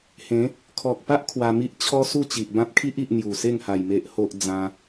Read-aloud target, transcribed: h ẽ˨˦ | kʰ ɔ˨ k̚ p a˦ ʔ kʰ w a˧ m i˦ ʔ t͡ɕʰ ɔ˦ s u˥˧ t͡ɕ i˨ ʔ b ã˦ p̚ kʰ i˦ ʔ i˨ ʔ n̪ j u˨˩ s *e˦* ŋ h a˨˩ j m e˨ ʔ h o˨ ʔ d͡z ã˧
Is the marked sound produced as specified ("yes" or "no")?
no